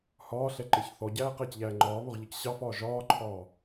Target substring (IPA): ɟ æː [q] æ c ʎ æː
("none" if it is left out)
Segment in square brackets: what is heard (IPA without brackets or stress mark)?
q